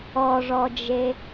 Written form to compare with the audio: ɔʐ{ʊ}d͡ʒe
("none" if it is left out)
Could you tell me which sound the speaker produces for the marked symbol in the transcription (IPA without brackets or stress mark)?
ɔ